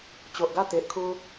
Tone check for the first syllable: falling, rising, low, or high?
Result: low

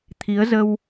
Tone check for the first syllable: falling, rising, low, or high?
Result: rising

